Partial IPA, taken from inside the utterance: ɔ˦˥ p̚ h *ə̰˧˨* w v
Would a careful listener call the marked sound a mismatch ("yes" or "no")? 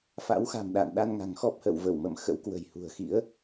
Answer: no